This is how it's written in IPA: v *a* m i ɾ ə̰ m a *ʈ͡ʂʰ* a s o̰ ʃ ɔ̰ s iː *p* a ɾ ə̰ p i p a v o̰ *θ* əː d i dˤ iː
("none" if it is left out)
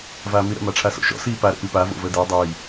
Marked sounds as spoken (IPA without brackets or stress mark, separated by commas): aː, ʈ͡ʂʰ, p, v